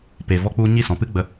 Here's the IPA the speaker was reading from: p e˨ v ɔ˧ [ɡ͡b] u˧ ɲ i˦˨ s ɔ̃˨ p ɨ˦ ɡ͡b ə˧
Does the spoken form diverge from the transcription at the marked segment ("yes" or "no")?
yes